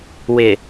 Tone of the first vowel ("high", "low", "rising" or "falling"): low